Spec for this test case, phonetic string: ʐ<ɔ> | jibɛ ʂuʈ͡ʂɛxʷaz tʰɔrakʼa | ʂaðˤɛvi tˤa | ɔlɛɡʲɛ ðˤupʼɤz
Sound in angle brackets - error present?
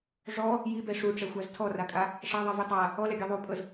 no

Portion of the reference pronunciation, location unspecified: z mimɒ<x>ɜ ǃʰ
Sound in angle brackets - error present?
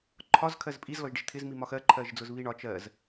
no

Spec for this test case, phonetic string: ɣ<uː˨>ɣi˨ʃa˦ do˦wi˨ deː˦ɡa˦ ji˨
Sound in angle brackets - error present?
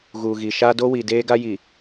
no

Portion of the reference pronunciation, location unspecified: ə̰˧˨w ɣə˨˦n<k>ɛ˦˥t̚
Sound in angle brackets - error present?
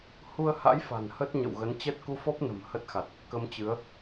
yes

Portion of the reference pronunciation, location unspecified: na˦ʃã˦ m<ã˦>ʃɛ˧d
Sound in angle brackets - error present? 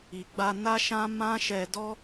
no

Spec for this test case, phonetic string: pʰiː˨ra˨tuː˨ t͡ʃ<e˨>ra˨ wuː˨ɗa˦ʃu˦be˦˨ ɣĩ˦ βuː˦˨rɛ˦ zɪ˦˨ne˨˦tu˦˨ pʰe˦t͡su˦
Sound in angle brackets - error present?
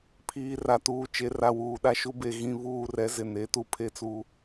no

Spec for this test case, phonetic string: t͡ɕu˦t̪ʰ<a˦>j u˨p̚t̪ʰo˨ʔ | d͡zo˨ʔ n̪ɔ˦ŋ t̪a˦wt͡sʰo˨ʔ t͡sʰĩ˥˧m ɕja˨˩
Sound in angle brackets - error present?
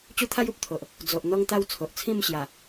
no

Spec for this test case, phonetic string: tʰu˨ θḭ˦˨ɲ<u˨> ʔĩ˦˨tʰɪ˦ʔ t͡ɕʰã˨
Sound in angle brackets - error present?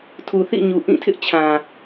no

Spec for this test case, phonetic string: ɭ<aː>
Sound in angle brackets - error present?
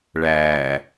yes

